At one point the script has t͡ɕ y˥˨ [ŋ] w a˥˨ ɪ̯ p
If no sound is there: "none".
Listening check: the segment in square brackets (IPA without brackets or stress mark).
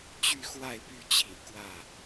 x